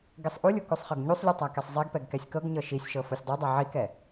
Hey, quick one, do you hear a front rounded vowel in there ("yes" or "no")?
no